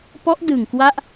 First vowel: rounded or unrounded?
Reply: rounded